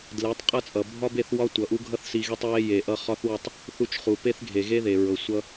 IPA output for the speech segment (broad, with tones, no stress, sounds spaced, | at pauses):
d l e˨˦ tˤ qʼ ʌ˦ t͡sʼ ʌ˨ bʱ ɒ˦ b e˦˨ θ w ɒ˦ tʷ ʌ˨ ʔ u˦ ɡʱ ʌ˦ θ s i˧ ɣ e˦ tˤ w e˧ j e˨ ʔ ʌ˧ χ ɒ˦ θ w ʌ˦˨ tˤ | θ u˧ t͡ʃ χ u˨ p e˦ θ ɡʱ e˨ ɣ e˦ ð e˨ ɹ ɤ˨ sʷ ʌ˦